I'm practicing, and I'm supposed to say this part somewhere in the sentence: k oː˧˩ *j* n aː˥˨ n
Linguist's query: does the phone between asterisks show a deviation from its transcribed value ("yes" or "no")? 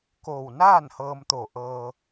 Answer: yes